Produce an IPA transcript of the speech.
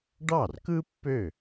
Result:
ɖɑ˥˩rkɯ˥ pːø˥˩

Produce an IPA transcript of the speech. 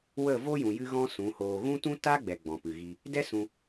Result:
wə˦˨vo˦jũ˨ jɨ˦ɣɔ̃˦sũ˨˦hoː˧ ɣũ˦tũ˦ ta˦ɡ͡bɛ˨ ɡ͡bɔ̃˨pɨ˨ɣi˧ | dɛ˦sũ˧

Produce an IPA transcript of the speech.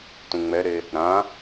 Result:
tũŋ͡mɛɾe | ɾã

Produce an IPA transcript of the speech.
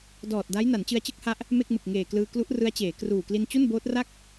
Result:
dɔː˨˩t̚da˦˥j na˩˦nt͡ɕɯ˧a̯t͡ɕɯ˥˩k̚ha˦˥ʔ | me˥˩k̚mɯ˨˩k̚ŋeː˨˩ klɯː˧ klu˦˥ʔ rɯ˦˥a̯t͡ɕeː˩˦kruː˨˩ kli˧nt͡ɕu˥˩nboː˦˥t̚ra˥˩k̚

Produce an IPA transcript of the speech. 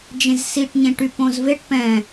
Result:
d͡ʒẽzsiʈ ɲẽʈypõzveʈ pɛ̃

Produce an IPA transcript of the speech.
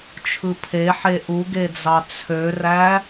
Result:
t͡ʃʰɯpʰeħe ʔuɡed͡zɑ t͡sʰøræ

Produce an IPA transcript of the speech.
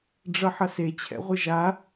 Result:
ɖ͡ʐʌħʌse t͡ɕʰɛ̰ʁʷɯʒa

